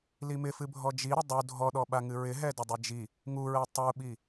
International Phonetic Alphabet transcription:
limɪfɨbʱɔ d͡ʒiɾɪ dˤu dʱɔɗɔɓaŋɨ ɹɪɦɛ dɪdˤɨd͡ʒi | ŋuɹɛ tˤuɓi

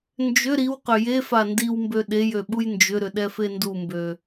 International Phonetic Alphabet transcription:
nd͡ʒʏ ɾiwqʏ jefa ndiwmbø ɗejø ɓujnd͡ʒʏɾʏ ɗɛfendumbø

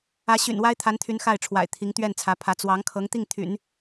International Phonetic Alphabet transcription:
ä˧˥ɕy̰˨˩nwa˥ɪ̯ t̪ʰa˧˥nt̪ʰy˧˥n xa˥˩ɪ̯ʈ͡ʂʰwa̰˨˩ɪ̯ t̪ʰi˧˥ŋt̪ɥɛ˥˩nt͡sʰä˧˥pʰä˧˥ t͡swɑ˧˥ŋ kʰɤ˧˥ŋt̪i˥˩ŋ t̪ʰy̰˨˩˦n

